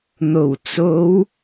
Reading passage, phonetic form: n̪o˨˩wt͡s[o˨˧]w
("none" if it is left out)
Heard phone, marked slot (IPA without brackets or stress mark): o˨˧